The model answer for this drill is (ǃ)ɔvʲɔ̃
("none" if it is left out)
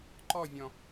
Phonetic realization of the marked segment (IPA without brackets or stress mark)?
ǃ